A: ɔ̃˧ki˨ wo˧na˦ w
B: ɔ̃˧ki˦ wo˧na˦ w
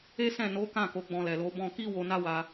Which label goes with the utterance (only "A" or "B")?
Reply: B